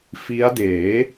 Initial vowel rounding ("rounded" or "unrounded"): unrounded